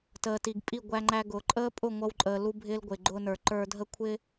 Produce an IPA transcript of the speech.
t əː˨ t i˨ ɡ pʼ i˦˨ ɡʷ æ˧ ŋ͡ǃ æ˧ ɡ ʊː˨ ǃʼ əː˦ pʼ ʊ˦˨ ŋʷ ʌ˧ w ǃʼ əː˨ l u˧ bʱ ɪː˧ l ɡʷ ɪː˨ ɡ͡ǃ ʊː˧ n ə˞˨ ǃ ə˞˧ dʱ ə˦ kʷʰ ɪː˦

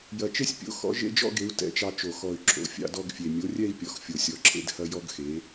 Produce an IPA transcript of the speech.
j ɐ˨˩ t͡ʃ e˥ sʲ pʲ o̰˨˥ x ɔ̰˨˥ ʒ ḛ˥ d͡ʒ ɔ̰˥ ɡ e˨˥ u̯ t ɛ̰˨˥ t͡ʃ ɑ˧ t͡ʃ o˨˩ x ɔ˨˩ y̯ ǁʰ o̰˨˥ fʲ ɑ̰˥˧ d ɔ˥˧ ɡ fʲ e˨˩ mʲ o˨˥ rʲ ɛ˥˧ i̯ pʲ ɔ˨˩ x fʲ o˨˩ sʲ ɔ˨˩ ǁʰ ḛ˥˧ d h ɐ˥ j ɔ˥ ɡ x e˨˥

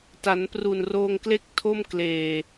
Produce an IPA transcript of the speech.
t a˩˦ n p r u˨˩ n r oː˧ ŋ k l e˥˩ k̚ tʰ o˥˩ m k l eː˨˩

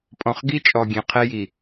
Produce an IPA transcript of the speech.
pʼ ɔ̃˨ χ ɡ i˦ t͡ʃʼ ɔ˨ ɡʲ ẽ˨ qʰ e˦ j i˨

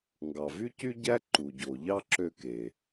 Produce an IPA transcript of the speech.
ŋ ɡ ɑ˩ v y˥ c y˥ ɟ æ˥ ǃ u˩ ɟ o˩ ʎ ɑ˥ ǁ ø˥ k e˩

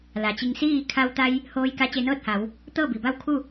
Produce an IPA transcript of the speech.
l a˩ t͡ɕ i˧ ŋ s iː˥˨ kʰ a˧ w t̪ a˧ j | h oː˧ j k a˧˥ t͡ɕ e˧ n ɤː˥˨ t̚ h a˩˧ w | t̪ ɤː˥˨ b i˩ b a˥˨ w kʰ u˥˨

